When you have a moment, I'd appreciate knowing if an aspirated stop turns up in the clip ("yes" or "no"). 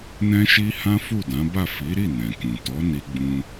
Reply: no